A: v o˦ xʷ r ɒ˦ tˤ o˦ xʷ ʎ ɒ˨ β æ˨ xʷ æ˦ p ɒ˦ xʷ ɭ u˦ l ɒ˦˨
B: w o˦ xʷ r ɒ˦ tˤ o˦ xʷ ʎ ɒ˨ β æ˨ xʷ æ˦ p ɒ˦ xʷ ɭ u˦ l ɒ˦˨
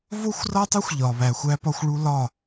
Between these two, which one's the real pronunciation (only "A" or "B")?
A